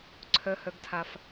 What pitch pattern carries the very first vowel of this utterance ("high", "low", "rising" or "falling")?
low